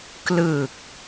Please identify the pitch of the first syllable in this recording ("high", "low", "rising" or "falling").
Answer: low